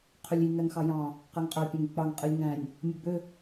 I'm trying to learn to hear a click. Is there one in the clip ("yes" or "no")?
no